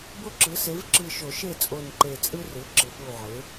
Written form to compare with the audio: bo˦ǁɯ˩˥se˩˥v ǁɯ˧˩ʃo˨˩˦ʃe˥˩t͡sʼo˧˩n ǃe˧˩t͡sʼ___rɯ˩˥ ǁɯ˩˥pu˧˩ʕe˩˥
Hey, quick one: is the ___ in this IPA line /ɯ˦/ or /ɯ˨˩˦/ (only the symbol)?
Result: ɯ˦